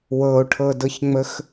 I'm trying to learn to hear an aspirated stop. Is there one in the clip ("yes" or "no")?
yes